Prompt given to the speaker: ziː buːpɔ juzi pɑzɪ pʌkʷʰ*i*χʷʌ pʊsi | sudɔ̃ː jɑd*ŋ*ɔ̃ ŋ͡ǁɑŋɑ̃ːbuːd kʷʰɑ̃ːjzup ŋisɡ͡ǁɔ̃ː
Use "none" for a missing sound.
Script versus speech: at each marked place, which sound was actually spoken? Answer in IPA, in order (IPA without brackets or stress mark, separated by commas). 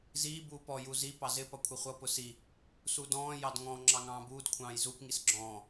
ɪ, ŋ